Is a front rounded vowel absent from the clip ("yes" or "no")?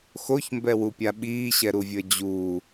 yes